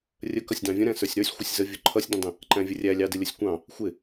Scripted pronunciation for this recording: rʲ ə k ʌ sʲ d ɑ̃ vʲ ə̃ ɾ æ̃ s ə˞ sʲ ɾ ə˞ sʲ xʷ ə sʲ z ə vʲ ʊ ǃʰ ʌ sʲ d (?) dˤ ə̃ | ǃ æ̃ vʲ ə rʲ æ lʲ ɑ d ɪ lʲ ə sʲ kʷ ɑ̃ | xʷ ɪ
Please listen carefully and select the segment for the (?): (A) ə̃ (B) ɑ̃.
A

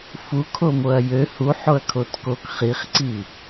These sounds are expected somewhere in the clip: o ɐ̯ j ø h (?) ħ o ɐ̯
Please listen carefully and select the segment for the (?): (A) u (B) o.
A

